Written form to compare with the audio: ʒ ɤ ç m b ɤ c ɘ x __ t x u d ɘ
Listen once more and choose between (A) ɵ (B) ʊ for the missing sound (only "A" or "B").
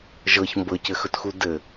A